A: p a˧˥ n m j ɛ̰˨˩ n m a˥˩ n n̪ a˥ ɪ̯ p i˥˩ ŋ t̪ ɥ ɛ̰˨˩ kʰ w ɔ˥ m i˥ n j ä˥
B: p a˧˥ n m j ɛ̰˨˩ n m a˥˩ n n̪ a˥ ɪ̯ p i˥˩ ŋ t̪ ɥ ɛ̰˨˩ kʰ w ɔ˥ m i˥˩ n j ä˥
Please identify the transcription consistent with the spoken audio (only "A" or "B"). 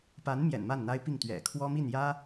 B